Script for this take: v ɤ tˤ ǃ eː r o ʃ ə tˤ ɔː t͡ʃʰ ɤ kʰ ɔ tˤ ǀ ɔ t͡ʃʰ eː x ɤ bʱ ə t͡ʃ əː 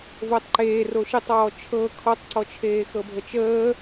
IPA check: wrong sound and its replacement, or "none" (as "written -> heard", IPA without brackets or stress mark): none